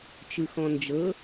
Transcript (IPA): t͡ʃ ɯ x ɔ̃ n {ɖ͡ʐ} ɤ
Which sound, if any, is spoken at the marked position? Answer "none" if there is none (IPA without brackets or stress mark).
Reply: d͡ʒ